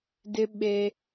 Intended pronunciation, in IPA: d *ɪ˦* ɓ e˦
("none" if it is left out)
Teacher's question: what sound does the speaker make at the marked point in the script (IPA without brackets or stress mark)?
ɪ˦